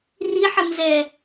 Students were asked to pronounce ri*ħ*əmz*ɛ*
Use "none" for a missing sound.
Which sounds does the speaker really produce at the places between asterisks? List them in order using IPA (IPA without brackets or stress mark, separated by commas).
ħ, ɛ